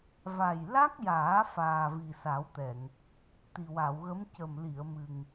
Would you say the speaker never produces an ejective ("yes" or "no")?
yes